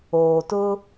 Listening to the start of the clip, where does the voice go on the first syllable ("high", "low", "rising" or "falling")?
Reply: low